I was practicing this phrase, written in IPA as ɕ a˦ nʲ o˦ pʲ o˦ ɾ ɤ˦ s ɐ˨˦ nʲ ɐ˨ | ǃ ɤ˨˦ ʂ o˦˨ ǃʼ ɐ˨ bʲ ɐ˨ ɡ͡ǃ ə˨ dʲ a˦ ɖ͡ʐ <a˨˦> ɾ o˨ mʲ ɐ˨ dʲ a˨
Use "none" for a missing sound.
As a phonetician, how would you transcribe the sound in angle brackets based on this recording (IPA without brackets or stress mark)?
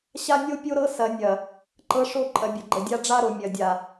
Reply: a˦